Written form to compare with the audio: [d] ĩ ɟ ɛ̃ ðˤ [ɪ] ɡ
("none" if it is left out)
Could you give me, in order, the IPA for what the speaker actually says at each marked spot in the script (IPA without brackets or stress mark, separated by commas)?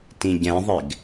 t, ɪ